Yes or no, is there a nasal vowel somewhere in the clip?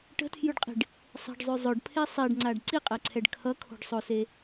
no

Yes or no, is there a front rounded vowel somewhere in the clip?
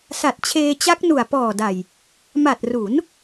no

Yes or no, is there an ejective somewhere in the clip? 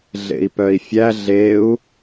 no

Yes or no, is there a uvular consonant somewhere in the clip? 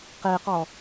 yes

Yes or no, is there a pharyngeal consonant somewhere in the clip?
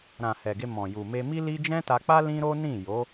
no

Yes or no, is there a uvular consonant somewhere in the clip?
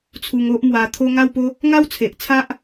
no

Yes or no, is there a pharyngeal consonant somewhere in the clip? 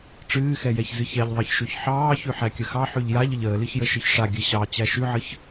yes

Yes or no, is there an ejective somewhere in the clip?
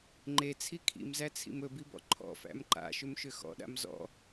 no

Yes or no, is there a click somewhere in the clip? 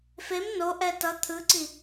yes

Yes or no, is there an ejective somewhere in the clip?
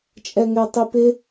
yes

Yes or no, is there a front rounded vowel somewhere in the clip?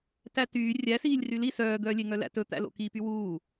yes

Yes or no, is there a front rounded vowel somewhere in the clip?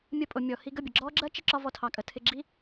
no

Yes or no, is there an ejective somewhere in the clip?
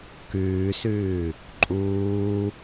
yes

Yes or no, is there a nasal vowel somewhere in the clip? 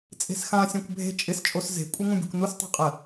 yes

